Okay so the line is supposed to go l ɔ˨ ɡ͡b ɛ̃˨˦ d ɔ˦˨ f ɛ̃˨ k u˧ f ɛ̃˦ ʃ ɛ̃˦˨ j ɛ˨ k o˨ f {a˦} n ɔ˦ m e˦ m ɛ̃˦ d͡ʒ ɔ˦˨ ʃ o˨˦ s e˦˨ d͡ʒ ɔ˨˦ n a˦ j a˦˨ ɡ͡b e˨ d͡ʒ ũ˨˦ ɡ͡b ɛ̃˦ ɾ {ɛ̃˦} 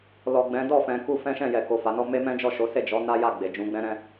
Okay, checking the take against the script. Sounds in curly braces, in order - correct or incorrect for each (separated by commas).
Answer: incorrect, correct